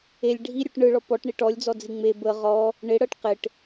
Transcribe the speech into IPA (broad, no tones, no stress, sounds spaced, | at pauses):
e lʲ ɖʱ i ɾʲ u ʈ ɳ ɯ ɭ ɔ p ɔ ʈ ɳ i ʈ ɔ lʲ d͡z ɔ d͡z i ŋ͡m e b ə ʁ ɔ | ɳ ɪ ɽ ɤ ʈ q ɪ ʈ